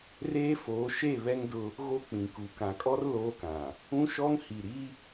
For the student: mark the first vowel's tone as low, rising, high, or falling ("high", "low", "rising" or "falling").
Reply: high